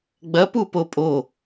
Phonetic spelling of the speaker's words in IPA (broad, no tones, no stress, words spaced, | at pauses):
ɡ͡bɐ pupopʼo